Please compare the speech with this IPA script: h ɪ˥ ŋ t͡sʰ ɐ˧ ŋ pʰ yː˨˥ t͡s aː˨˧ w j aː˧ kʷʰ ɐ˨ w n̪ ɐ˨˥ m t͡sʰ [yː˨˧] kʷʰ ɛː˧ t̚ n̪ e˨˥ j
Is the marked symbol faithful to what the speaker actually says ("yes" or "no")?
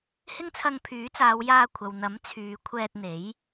yes